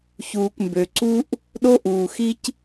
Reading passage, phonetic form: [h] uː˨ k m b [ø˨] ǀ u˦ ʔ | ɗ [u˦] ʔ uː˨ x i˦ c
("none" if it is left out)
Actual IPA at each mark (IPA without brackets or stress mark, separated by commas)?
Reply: ç, ø˨, o˦